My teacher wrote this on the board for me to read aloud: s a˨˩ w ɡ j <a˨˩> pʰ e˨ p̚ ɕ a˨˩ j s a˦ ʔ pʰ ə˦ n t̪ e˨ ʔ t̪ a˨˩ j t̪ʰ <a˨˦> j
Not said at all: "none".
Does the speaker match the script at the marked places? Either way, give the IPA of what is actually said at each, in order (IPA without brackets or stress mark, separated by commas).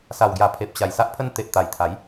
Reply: a˨˩, a˨˦